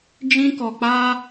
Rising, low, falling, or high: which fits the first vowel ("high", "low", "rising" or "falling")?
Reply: high